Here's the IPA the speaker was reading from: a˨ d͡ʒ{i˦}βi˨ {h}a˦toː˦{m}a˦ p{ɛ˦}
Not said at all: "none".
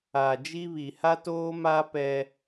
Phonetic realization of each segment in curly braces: i˦, h, m, ɛ˦

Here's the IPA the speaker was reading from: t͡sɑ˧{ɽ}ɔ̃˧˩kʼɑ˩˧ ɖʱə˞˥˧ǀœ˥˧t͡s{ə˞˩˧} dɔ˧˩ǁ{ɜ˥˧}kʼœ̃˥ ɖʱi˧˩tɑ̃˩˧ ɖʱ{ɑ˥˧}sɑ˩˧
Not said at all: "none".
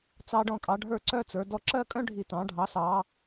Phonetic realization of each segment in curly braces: ɖ, ə˞˩˧, ɜ˥˧, ɑ˩˧

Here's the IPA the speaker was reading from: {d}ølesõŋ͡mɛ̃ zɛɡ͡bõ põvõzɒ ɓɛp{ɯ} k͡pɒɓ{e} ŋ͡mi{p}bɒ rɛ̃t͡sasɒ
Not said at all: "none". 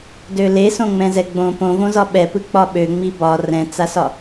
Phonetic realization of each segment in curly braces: d, ɯ, ø, none

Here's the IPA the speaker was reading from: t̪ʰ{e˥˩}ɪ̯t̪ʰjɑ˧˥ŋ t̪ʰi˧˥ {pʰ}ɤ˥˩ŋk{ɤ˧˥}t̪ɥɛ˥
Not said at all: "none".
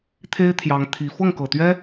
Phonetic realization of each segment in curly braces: e˥, f, ɤ˨˩

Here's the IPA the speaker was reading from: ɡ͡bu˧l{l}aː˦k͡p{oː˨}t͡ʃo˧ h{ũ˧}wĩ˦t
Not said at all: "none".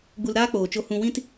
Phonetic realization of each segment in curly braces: ɾ, oː˨, ũ˧

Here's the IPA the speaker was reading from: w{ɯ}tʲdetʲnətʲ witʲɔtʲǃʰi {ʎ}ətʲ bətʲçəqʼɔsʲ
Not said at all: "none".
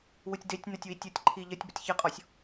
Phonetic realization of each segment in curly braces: ɯ, ʎ

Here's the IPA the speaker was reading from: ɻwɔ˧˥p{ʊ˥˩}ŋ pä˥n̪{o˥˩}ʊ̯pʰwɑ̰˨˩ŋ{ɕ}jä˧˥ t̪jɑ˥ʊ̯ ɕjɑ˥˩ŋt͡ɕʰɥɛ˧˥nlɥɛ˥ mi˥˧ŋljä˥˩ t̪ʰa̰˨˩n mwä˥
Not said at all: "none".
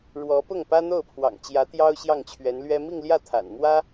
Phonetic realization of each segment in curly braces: ʊ˥˩, o˥˩, t͡ɕ

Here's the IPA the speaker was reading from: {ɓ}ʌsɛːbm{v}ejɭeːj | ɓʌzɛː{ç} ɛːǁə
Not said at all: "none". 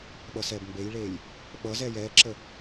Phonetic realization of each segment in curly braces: ɓ, b, j

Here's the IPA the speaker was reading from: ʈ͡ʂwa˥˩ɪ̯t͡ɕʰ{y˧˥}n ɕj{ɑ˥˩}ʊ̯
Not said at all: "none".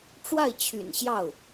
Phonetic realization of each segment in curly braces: y̰˨˩, ɑ˥˩

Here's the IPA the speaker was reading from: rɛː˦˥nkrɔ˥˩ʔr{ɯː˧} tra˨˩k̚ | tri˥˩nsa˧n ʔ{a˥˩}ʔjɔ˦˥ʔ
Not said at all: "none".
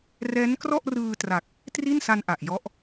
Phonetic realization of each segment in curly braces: ɯː˧, a˨˩

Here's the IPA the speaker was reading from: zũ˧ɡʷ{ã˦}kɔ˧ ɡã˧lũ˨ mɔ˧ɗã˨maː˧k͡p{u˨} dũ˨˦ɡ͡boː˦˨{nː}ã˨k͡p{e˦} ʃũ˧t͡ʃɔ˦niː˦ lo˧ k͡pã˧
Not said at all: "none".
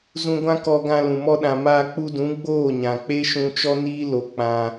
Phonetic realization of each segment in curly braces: ã˦, u˧, ɲ, e˦

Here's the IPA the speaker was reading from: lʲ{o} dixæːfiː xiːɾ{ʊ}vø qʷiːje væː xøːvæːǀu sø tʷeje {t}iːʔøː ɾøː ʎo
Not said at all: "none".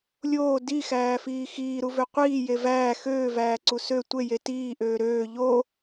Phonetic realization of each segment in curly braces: oː, u, t

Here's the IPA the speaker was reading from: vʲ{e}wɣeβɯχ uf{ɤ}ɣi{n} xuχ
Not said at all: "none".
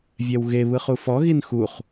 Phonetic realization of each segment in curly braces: ɛ, ɔ, n

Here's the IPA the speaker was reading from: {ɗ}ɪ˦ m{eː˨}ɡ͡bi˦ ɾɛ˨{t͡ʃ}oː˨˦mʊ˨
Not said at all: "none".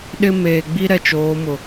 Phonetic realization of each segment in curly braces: ɗ, eː˨, t͡ʃ

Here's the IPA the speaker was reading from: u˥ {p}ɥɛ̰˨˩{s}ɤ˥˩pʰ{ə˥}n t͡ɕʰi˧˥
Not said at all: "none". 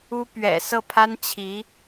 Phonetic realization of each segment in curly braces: p, s, a˥

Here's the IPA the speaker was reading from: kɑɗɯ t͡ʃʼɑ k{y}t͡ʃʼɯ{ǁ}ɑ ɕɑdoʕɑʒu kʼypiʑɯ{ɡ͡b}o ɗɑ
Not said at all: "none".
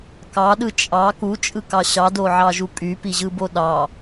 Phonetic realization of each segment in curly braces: u, k, b

